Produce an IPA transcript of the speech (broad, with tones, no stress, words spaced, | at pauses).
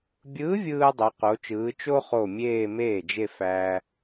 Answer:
bʲɯː˧˥vʲɯː˧ dˤo˧˥qo˧˥t͡ʃɯː˧˥ t͡ʃo˥χo˧˩ mʲeː˥˧meː˥˩d͡ʒe˥˧ fæː˧